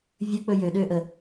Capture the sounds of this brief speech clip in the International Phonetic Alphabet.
vʲ ɵ k͡p ɵ j ø ɗ øː ʔ ə

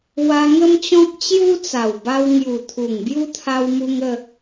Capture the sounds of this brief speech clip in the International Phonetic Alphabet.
w a˧ ŋ ə˦ m t͡ɕ ɔ̃˦ k̚ t͡ɕ j u˦ t͡s a˨˩ w b a˧ w ŋ j u˨˩ t̪ʰ u˨˩ ŋ b j u˦ t̪ʰ a˧ w m u˧ ŋ ə˥˧

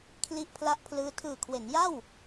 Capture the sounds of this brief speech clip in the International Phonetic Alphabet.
kʰ l i˦˥ ʔ pʰ l a˦˥ ʔ pʰ l ɯː˦˥ tʰ ɯː˨˩ kʰ w e˩˦ n j a˥˩ w

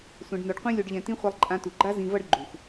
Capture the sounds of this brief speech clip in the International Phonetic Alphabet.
sʷ ɛ̃˨ ɖ n o˨ ɖ qʷ ĩ˧ lʲ o˧ ɖ ʎ ɛ̃˧ t ĩ˦ χʷ a˧ lˠ ǃʼ ã˧ t u˨ ɡ͡ǃ a˦ z ĩ˨ v ʌ˧ ɖ ɡ͡ǃ u˨ x

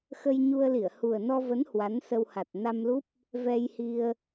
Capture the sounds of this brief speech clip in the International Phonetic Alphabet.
x ə˧ j ɲ u˧ ə̯ l i˧˩ ə̯ h u˨˩ ə̯ n ɔ˧ v ə˨˦ n h w a˨˦ n s ə˧ w h a˨˩ t̚ n a˧ m l u˦˥ p̚ | v ɛ˧ j h i˧ ə̯

